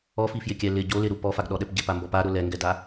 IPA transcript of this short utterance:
ɔ f i f j ɪ kʲ ɛ l ɪ ɟ o l ɪ ɾ u p ɔ f a ɡ ɗ ɔ ɗ ɛ p ɟ ɪ p a m b ɔ p a ɾ ʊ l ɛ ŋ ɡ ɛ d a

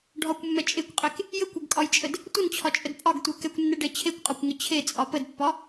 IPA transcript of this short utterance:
ɖʱ ɒ kʷ mː ɛ t͡ʃʼ e kʷ qʼ e k | j ə kʷ e ɡ kʼ ɒ j t͡ʃʼ ə d | tʷ ə n t͡ɕʰ ɒ t͡ʃʼ ə d pʼ ɒ ɡ tʷ e k ɛ kʷ nː ɛ ɖ ɛ t͡ɕʰ e kʷ qʼ ɒ kʷ ŋ ə t͡ɕʰ e t͡sʼ ɒ p ə d pː ɒ

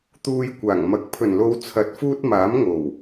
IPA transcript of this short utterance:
t̪ uː˧ j kʷ aː˨˩ ŋ m ɐ˨˥ k̚ pʰ ɵ˨˩ n l o˨˧ w t͡sʰ ɐ˨˥ t̚ f uː˥ t̚ m aː˨˥ m ŋ o˨˩ w

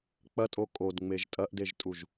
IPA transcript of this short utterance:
k͡p ɐ tʼ o kʼ o d ŋ͡m e ʒ tʼ ɐ ʔ d e ʒ tʼ u ʒ

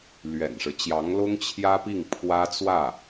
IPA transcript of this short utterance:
l ɥ ɛ̰˨˩ n ʂ ɻ̩˦ t͡ɕ j ɑ˧˥ ŋ l ʊ˥ ŋ t͡ɕʰ j ä˥ p i˥˩ ŋ pʰ w ä˥ t͡s w ä˥˩

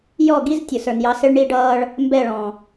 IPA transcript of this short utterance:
j ɔ˦˨ ɡ i˦ z tʲ ʊ˨ s ə˞˨ n j ɑ˧ s ɪ˦ ɭ ɳ i˦ ɖ ʌː˦ ɭ | m b ɛ˦˨ ɭ ɔ̃˨

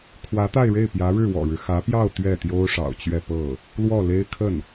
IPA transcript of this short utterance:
kʰ w ä˧˥ t̪ a˥˧ ɪ̯ ɻ e˥˩ ɪ̯ p j ä˧˥ ɻ ɻ̩˥˩ w ɔ̰˨˩ ɻ ɻ̩˦ x ä˧˥ p j ɑ˥˧ ʊ̯ t̪ ɥ ɛ˥˩ t̪ j o˥ ʊ̯ ʂ ɑ̰˨˩ ʊ̯ t͡ɕ ɥ ɛ˥˧ p ɤ˥˩ | l w ɔ˥˩ l e˥ ɪ̯ kʰ ə˥˩ n

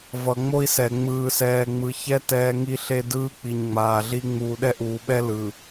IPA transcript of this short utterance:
v ʌ˨ ŋ͡m o˦ i̯ s ɛ˨ ŋ͡m ɯː˨ s ɛː˨ ŋ͡m ɯ˨ ç ɛ˦ t ɛː˦ ŋ i˦ ɬ e˦ d ɯː˦ k͡p i˨ ɲ ŋ͡m aː˨ ɮ i˦ ŋ͡m uː˨ ɗ ɛ˦ ʔ uː˨ ɓ ɛ˦ l ɯ˨

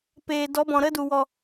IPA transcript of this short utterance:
p eː˨ d ɔ˨˦ b ɔ̃˨ ɾ ə˦ d u˨ w ɔ˨

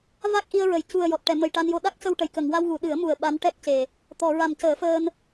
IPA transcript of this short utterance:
v a˦˥ k̚ ʔ i˧ ə̯ ɹ ə˨˩˦ j c u˨˩ ə̯ j ɔ˨˩ t̚ ʈ ɛ˨˩˨ m ə˨˩ j ʈ a˧ n j o˧ ɗ a˦˥ k̚ c ə˧ w ʈ ə˨˩˨ j k ə˨˩˨ ŋ w a˧ w ɣ u˨˩˨ ɗ ɨ˨˩˦ ə̯ m u˨˩ ə̯ ɓ a˧˥ n ʈ ɛ˦˥ k̚ c e˨˩ | t̪ ɔ˨˩˨ ɹ a˨˩ m c əː˨˩˦ f əː˧ n

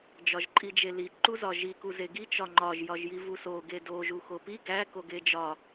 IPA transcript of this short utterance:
d͡ʒ ɒ ʒ ǃʼ i d͡ʒ e l i ǃ u z ɒ ʒ i k u z e ɡ i t͡ʃ ɒ ŋ͡ǃ ɒ ʒ j ɒ ʒ j i v u s o ɡ e d o ʒ u x o p i ɡ æ k o ɡ e d͡ʒ ɒ

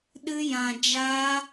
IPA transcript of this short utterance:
ɗ ɨ˦ j ã˧ d͡ʒ a˦

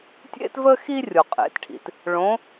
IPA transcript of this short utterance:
tʲ ḛ˥ t v ə˥ x i˥ rʲ o˩ qʼ ḛ˩˧ t ʈʰ ḭ˩ t | ɭ õ˧˥

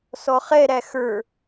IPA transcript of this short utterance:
s ɔ χ ɛ ɾ æ x ə˞

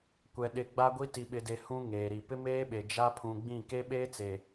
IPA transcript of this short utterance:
kʷ ɛ˨ ɗ ɪ˨ ɡ͡b a˦ ɡʷ i˦ t i˨ ɓ ɪ˨ d e˨ h ũ˦ ŋ eː˨ ɾ i˨ p ɪ˦ m eː˦ ɓ e˨ d͡ʒ a˦ pʰ ũ˨ ɡ͡b ĩ˦˨ k e˦ ɓ eː˦ t͡s e˨

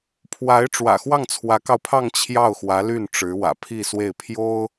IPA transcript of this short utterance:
pʰ w a˧˥ ɪ̯ ʈ͡ʂ w ä̰˨˩ x w ɑ˥˩ ŋ t͡sʰ w ä˧˥ k ɑ˧ ʊ̯ pʰ ɑ˥˧ ŋ t͡ɕʰ j ɑ˥˩ ʊ̯ x w ä˧˥ l y˥˩ n ʈ͡ʂ ɻ̩˧˥ w ä̰˨˩ pʰ i˥˧ s w e˥˩ ɪ̯ pʰ j o˥ ʊ̯

